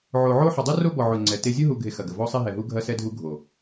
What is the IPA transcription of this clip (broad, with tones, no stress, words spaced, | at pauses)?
ʕo˨ ʕo˦ ħʊ˨dˤu˦ ro˦ bɔ˨ʕʊ˨ ŋ͡ǀɛ˨te˦ zʲu˦ɦu˨ɡʱe˨ xɐ˨ɡə˨ vɔ˦sˤe˦ɦɛ˨ɦu˦ ɡʱɐ˦sɛ˦ dʱu˦ɡʱo˨